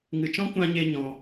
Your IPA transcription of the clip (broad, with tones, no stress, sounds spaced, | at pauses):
ŋ ɨ˨ t͡ʃ ɔ̃˦ kʷ ã˧ ɲ e˧ ɲ ɔ̃˧